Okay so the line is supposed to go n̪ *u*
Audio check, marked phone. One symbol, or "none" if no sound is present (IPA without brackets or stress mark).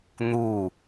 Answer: u